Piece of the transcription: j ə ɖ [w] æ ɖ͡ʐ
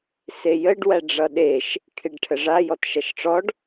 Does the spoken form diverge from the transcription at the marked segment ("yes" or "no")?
no